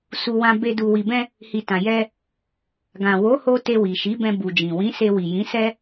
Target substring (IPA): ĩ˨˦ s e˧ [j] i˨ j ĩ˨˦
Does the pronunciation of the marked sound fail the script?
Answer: yes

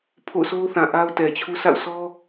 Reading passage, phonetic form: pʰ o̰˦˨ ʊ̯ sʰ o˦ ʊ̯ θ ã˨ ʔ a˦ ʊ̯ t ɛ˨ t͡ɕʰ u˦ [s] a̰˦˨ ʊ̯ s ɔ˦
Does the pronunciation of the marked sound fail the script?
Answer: no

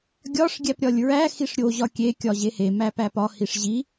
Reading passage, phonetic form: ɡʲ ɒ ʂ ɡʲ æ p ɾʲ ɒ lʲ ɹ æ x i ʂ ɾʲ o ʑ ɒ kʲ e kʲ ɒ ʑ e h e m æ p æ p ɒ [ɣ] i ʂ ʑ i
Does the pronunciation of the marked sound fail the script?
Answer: yes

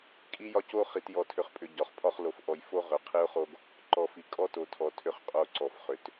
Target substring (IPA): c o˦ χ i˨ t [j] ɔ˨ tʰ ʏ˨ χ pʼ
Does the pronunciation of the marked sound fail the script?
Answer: no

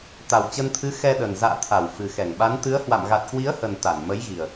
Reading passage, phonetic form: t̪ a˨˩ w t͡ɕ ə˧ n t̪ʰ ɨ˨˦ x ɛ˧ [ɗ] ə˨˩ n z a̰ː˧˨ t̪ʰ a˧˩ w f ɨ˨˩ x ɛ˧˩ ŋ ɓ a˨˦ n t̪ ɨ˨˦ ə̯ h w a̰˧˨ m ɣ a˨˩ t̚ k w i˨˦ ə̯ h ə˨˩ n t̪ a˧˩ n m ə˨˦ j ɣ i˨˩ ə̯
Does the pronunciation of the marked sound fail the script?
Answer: no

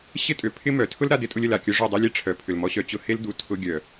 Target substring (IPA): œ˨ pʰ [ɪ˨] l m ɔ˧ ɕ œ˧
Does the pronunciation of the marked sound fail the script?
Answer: yes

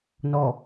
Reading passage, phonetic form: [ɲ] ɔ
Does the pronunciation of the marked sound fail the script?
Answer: yes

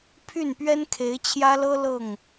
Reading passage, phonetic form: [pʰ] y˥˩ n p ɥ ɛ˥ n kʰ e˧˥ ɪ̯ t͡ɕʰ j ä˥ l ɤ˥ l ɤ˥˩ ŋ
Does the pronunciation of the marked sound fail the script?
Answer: no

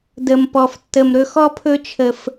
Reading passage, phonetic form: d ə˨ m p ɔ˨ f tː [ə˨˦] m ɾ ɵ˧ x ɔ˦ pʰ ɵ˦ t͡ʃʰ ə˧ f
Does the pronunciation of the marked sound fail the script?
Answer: yes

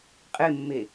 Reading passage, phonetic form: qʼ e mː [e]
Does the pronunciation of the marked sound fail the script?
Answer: no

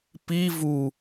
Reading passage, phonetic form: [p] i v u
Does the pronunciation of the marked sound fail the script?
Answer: no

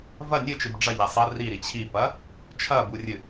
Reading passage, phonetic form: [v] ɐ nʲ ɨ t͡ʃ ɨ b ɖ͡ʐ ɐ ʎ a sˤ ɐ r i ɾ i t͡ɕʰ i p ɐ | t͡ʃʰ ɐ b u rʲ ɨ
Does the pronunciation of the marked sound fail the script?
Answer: no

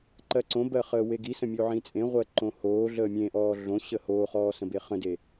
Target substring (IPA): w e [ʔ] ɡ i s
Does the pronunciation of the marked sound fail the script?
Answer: yes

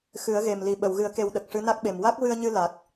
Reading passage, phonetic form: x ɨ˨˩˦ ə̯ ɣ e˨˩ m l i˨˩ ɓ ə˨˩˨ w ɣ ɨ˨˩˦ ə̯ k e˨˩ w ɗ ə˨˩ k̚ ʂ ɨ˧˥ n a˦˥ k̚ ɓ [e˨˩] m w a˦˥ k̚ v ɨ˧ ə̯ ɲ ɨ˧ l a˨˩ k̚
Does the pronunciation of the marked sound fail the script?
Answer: no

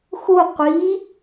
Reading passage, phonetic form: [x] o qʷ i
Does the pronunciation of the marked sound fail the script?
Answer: no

